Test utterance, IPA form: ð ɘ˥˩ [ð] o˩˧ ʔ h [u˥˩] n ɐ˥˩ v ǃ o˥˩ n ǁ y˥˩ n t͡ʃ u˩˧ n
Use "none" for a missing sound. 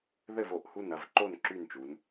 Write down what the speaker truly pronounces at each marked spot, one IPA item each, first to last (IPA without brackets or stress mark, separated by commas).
v, u˥˩